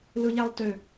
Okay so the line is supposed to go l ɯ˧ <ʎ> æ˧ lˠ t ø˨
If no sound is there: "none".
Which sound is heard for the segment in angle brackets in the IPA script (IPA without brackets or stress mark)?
ʎ